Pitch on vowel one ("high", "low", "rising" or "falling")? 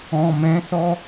low